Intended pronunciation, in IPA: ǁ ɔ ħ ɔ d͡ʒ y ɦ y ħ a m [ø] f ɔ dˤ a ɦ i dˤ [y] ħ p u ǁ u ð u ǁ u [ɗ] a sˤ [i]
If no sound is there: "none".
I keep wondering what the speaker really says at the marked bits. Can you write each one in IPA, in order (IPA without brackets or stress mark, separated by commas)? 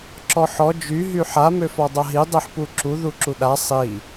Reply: ø, i, ɗ, i